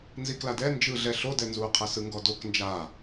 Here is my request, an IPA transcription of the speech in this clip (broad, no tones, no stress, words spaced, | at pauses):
nzikladɛ nd͡ʒɯɮɛ ɬodɛnzuːqʰɛ sɯŋɡɔdok nd͡ʒa